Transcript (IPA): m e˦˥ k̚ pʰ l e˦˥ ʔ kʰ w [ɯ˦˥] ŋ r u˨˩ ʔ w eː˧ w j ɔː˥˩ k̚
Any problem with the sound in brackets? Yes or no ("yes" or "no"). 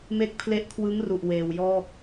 no